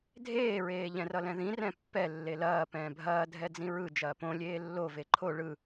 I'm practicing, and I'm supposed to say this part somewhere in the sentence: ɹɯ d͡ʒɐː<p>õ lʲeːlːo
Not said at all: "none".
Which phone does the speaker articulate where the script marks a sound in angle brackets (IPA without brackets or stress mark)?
p